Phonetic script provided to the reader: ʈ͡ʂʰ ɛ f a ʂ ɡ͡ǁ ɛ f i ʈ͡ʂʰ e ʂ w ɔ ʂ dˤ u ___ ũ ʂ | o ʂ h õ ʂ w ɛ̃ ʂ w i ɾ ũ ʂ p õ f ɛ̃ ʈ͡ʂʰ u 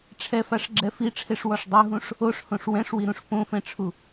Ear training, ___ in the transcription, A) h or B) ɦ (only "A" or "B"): B